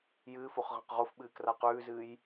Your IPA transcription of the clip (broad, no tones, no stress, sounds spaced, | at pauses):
j ɨː f o χ ʁ ɐ̃ q ʁ o f ɓ ɨː k r a q ʉː z ɨː j